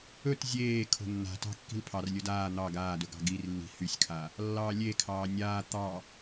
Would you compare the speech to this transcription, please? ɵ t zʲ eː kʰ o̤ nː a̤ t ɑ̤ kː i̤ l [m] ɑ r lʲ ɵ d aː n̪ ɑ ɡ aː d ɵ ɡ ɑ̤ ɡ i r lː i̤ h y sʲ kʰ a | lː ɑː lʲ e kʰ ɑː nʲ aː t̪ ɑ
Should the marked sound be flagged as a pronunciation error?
yes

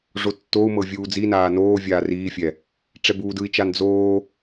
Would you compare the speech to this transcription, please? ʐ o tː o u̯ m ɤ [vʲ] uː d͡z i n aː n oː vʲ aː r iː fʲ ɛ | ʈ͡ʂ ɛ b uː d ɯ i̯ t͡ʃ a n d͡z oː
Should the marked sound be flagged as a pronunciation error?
no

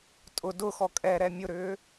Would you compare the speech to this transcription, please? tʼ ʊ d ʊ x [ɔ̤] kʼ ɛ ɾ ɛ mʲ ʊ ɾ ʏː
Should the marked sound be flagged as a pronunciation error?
yes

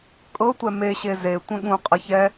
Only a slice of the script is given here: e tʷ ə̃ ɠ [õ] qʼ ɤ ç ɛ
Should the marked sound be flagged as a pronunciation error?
yes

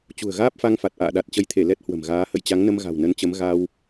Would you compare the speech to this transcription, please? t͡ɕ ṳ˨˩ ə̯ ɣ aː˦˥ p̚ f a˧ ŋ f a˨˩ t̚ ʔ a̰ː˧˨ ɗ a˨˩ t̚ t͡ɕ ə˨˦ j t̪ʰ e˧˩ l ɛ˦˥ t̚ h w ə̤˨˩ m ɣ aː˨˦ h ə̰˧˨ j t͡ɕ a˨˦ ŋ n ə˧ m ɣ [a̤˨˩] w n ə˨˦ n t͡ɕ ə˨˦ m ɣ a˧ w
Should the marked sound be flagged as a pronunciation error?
no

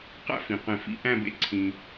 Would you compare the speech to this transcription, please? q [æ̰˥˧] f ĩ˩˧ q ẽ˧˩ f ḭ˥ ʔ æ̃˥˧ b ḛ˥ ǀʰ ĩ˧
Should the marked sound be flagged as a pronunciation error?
no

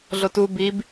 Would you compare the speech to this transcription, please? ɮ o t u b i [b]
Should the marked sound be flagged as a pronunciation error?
no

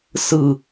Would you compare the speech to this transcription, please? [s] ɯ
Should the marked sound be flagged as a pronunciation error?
no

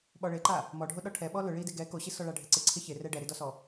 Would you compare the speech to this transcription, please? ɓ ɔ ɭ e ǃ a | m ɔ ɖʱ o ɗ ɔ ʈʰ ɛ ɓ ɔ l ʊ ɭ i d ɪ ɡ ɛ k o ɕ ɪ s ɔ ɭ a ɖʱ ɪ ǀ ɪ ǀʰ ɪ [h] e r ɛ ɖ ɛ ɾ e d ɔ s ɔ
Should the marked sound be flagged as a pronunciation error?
yes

